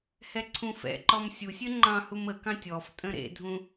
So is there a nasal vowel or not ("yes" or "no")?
yes